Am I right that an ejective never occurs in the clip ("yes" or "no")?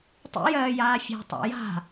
yes